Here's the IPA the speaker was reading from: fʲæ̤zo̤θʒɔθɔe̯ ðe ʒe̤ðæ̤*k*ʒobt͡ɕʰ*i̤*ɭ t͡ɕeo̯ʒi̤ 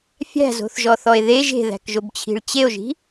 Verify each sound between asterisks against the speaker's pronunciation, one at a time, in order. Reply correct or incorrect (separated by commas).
correct, correct